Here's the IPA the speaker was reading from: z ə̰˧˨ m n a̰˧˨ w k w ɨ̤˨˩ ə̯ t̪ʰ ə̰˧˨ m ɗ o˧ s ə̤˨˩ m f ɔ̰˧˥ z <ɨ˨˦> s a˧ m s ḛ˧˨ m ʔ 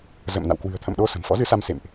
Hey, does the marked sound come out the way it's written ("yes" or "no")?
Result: yes